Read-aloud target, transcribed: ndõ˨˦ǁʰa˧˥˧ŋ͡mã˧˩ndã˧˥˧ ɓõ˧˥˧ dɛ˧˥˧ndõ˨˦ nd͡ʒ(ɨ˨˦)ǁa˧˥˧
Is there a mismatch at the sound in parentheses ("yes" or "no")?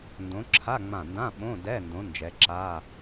yes